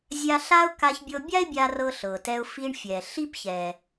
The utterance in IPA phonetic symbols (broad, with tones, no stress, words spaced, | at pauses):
zʲa˧ ɬa˧ʊ̯ ka˧çbʲɤ˧bʲa˥ɪ̯bʲa˧ rɤ˧ɬɤ˩tɛ˧ʊ̯ fi˧ɳfʲɛ˩ ɬi˧pçɛ˩